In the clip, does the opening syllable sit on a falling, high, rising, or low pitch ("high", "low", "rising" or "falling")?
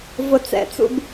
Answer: high